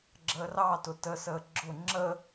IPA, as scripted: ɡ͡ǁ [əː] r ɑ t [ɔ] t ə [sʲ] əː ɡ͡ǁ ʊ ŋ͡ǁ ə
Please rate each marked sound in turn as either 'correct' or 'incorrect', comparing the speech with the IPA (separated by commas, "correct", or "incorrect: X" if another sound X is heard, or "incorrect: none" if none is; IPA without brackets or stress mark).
correct, incorrect: ʊ, incorrect: s